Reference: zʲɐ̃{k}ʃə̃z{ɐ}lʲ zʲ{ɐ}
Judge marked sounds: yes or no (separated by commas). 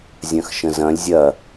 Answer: no, no, yes